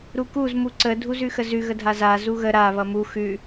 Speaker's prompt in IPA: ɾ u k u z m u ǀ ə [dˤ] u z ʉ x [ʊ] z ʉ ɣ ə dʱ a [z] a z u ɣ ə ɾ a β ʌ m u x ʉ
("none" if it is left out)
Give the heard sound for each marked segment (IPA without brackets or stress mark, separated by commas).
dʱ, ə, z